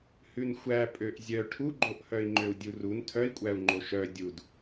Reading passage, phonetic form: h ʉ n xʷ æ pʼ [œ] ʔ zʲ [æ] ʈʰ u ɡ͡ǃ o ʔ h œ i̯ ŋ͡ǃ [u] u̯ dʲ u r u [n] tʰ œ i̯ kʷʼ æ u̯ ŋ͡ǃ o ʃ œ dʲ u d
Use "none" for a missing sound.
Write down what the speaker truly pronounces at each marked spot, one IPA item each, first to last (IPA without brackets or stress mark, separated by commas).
ø, œ, ø, n